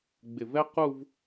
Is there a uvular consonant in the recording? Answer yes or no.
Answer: yes